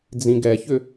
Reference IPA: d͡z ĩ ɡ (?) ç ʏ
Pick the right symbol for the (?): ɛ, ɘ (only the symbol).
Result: ɛ